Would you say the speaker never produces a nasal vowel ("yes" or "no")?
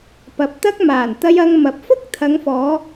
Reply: yes